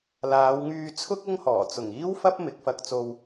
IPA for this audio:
l aː˨˧ w ŋ yː˧ t͡sʰ ʊ˥ k̚ ʊ˥ ŋ h ɔː˨˩ t͡s ʊ˨˩ ŋ iː˥ w f ɐ˥ p̚ m ɪ˨˥ k̚ f ɐ˧ k̚ t͡s o˧ w

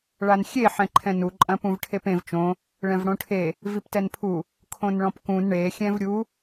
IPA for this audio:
ɭ a n xʲ e ħ ɛ̃ ǃʰ ɛ̃ n u ǃʼ ɐ̃ p ũ v ʈʰ e p ẽ v t͡ʃ õ | ɭ ɛ̃ v ɽ õ ʈʰ e | v i p t ɛ n pʰ u | kʰ õ n ɭ ɔ̃ p k ũ n ɳ e xʲ ɛ̃ v ɾʲ u

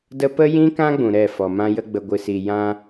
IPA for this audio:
d ə˦ p ə˦ j ĩ˦ k ã˦ ɡ͡b ũ˨ ɾ ɛ˦˨ f ɔ˨ m ã˦ j ə˦ ɡ͡b ə˨ ɡʷ ɨ˨ s i˨ j ã˦

